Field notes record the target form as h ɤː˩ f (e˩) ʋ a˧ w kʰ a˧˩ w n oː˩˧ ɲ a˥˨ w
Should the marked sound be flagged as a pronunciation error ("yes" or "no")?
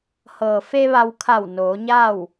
yes